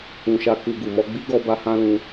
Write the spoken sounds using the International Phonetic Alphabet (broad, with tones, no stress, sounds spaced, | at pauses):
ũ˨ ʃ a˧ k u˧ ɡ u˨ m ɔ˧ ɡ͡b i˦ ɡ ɔ˧ b a˧ h ã˦ l ũ˧